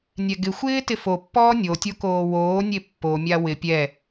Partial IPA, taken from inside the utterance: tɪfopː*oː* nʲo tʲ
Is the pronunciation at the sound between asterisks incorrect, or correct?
incorrect